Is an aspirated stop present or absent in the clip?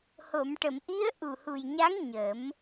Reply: absent